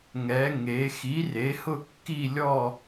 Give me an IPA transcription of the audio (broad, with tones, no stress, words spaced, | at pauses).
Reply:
ŋɛ˩˧ŋe˩˧ xi˩˥re˩˥hʊ˦˨ kːi˦˨lʲɔ˦˨